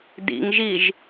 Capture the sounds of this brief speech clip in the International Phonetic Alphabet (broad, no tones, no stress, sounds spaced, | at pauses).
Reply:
d ḭ ŋ ʒ i ʒ